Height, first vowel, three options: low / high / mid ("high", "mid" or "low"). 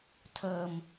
mid